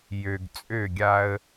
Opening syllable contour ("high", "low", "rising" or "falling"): low